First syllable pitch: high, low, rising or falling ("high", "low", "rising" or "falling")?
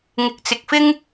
rising